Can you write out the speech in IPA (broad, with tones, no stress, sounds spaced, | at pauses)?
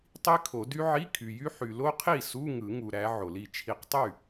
tˤ i˦˥ kʰ o˨˩˦ d y˦˥ ʕ i˧˥˧ kʰ y˨ j y˦˥ ħ y˨ l o˦˥ qʰ i˥˩ s u˧˥˧ ŋ ɯ˨˩˦ ŋ u˨ ɾ æ˨˦ ʕ o˨˩˦ l i˥˩ t͡ʃʰ i˥˩ q tˤ y˥˩